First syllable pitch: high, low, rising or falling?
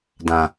low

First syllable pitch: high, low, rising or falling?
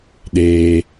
low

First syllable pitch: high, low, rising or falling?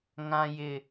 high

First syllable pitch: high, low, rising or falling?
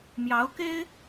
rising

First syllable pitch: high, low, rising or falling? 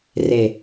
low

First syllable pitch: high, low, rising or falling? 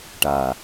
low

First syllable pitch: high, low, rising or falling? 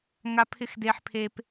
high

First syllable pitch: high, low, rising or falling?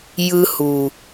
high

